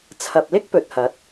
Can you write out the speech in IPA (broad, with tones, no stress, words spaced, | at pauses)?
t͡sʰɐ˨p̚lɪ˥k̚pɵ˨t̚hɐ˨˥t̚